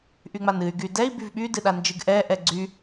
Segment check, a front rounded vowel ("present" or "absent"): present